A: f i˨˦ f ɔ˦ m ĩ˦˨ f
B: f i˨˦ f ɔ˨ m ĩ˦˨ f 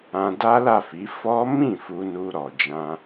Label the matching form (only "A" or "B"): A